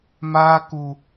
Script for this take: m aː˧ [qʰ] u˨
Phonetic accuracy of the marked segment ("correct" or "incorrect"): incorrect